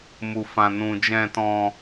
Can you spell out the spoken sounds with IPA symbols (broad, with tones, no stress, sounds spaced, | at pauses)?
m u˧ f ã˧ n ũ˧ d͡ʒ ɛ̃˧ t ɔ̃˧